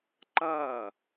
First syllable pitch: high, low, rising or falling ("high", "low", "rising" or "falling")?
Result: falling